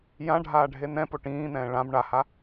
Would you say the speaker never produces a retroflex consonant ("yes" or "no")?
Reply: no